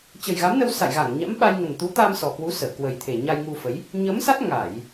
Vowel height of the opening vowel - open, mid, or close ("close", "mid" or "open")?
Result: mid